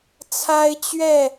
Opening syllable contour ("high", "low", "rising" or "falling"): high